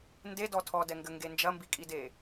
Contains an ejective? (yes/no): yes